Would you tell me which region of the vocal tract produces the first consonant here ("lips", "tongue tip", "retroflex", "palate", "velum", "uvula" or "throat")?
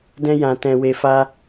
tongue tip